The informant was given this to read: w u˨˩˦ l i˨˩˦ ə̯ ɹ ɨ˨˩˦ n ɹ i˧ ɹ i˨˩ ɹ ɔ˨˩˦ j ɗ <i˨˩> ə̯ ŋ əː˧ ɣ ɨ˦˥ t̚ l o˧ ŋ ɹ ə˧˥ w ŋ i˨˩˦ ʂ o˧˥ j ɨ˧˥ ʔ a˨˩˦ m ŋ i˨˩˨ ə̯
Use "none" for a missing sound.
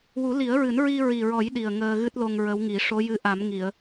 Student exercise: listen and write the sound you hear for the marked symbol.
i˨˩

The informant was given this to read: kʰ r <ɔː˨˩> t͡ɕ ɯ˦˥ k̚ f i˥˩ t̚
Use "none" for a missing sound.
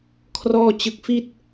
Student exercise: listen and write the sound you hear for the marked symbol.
ɔː˥˩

